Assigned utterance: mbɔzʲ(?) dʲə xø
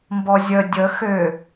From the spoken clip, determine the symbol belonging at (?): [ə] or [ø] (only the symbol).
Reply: ə